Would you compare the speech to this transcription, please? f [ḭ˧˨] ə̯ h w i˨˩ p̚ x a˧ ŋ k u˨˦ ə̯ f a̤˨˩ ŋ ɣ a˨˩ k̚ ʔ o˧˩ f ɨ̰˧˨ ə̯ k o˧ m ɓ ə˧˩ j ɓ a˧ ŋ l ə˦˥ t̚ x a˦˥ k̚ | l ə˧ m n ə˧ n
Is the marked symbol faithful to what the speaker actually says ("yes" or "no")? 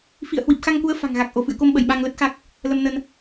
yes